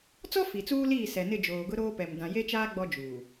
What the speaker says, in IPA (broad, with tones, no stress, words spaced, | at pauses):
t͡sɔ˦ fi˨t͡suː˦liː˦˨ sɛ˨nɪ˦˨ d͡ʒoː˨ɡʊ˦ ɾoː˦pɛ˨m dã˨je˦t͡ʃaː˦ ɡ͡bɔ˦d͡ʒuː˨